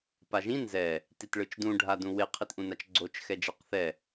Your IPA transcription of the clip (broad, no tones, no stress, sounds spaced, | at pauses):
p a ʒ ĩ n z ɛ | t i t ɭ ɯ t͡ʃ d ũ ɖʱ a d ũ w e qʰ i t ʔ ũ n a t͡ʃ ɡ͡ǀ o t͡ʃ x ɛ d͡ʒ ɛ q θ ɛ